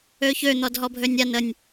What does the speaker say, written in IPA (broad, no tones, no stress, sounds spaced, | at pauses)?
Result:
ø ç ø n̪ ɔ d ɦ ɔ bʱ ø nʲ a n ə nʲ